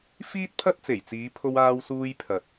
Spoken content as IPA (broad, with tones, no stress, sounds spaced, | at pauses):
f iː˥ t̚ pʰ ɐ˥ t̚ t͡s e˨˩ j t͡s iː˨˧ pʰ o˧ w aː˧ w s uː˧ j pʰ ɐ˨ t̚